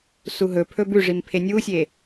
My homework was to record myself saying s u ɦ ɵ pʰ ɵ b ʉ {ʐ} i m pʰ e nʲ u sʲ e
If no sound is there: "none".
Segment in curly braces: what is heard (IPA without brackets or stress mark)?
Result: ʐ